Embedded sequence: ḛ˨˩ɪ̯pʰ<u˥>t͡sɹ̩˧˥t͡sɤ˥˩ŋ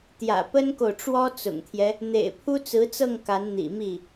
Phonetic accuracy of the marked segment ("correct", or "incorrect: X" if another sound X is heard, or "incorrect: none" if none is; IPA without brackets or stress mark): correct